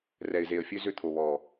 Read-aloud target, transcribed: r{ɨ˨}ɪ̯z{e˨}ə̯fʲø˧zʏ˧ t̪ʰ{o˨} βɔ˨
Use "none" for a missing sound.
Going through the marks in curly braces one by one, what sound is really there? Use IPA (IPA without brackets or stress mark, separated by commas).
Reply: ɛ˨, e˨, o˨